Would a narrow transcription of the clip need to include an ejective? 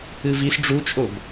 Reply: yes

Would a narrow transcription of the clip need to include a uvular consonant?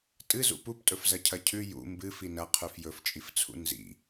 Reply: yes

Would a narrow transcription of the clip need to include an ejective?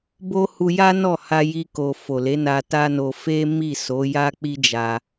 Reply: no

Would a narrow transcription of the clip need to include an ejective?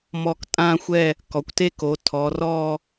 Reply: yes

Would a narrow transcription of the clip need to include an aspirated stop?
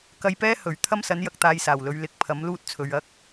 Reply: yes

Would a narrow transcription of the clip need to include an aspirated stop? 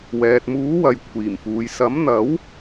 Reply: yes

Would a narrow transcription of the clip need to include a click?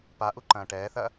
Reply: yes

